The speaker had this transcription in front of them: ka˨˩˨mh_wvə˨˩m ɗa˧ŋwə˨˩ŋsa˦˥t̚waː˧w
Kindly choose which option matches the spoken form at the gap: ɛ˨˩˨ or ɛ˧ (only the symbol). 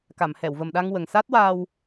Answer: ɛ˨˩˨